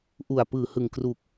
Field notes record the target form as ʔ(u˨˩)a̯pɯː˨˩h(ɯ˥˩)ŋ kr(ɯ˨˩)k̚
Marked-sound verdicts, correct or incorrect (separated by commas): correct, incorrect, incorrect